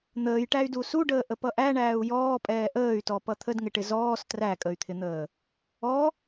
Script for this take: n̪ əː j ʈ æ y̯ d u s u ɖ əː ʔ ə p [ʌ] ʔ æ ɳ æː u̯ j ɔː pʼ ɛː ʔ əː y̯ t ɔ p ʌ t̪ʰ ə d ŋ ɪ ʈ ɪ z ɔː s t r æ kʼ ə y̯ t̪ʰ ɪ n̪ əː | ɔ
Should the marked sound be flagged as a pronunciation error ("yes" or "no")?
no